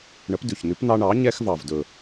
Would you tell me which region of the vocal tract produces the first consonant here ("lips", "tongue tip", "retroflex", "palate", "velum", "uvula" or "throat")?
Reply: retroflex